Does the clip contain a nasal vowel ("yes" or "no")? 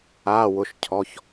no